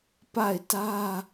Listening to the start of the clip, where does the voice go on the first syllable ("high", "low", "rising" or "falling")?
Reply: falling